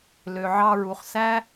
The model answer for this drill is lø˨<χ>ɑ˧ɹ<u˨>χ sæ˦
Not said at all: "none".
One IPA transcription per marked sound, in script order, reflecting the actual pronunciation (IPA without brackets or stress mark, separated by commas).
ʕ, u˨